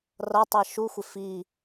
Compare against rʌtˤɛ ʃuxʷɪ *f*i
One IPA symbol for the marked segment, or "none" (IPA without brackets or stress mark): f